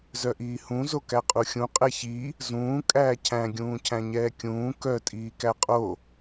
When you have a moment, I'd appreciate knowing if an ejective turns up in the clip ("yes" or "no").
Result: yes